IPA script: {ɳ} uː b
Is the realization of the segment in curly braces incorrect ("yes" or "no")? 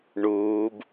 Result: no